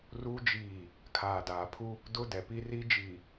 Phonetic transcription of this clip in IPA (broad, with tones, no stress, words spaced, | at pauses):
ru˦d͡ʒiː˦˨ | kʰaː˨daː˨pʰu˦ | dʊ˦dɛ˨pi˦ri˦ d͡ʒiː˨